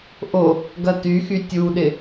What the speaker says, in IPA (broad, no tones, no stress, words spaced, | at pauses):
ʔo | ɡɐtyxy tʲuɗɪ